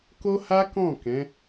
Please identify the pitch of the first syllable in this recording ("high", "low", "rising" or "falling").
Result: high